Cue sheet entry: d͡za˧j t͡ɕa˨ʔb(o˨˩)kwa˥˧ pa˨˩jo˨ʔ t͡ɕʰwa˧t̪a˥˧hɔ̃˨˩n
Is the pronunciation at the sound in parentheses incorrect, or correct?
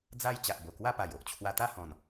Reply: correct